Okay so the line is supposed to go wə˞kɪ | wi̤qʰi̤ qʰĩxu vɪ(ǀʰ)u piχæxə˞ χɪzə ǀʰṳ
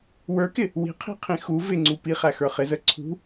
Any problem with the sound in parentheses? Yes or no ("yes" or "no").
yes